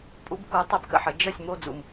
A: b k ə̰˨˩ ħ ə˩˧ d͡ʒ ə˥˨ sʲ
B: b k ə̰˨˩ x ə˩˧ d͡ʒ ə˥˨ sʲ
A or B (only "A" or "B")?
A